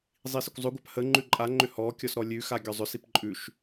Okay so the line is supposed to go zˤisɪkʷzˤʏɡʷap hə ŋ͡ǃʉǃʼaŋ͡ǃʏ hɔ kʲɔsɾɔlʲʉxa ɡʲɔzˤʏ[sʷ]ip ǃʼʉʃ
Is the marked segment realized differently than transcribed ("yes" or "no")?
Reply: yes